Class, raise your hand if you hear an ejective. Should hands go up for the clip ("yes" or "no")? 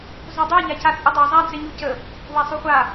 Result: yes